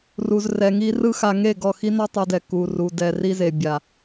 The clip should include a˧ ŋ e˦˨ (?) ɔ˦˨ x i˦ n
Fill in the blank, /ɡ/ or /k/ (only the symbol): ɡ